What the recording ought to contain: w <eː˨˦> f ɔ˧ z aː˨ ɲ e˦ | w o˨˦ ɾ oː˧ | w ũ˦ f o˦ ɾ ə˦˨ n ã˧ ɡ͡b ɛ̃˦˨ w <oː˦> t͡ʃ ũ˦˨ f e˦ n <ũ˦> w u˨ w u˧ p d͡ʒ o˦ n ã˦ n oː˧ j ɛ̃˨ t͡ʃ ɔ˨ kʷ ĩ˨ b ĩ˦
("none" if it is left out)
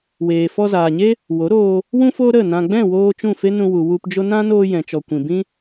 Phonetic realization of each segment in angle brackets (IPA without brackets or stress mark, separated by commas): eː˨, oː˧, ũ˧